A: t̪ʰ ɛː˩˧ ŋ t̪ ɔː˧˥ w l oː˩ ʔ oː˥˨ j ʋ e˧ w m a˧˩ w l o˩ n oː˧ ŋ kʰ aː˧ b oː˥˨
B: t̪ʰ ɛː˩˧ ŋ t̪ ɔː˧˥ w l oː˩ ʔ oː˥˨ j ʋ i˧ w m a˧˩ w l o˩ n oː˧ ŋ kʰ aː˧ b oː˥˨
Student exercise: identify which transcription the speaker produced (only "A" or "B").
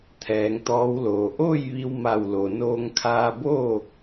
B